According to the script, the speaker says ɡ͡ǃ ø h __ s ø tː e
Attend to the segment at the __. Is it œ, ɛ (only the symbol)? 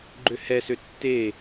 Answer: ɛ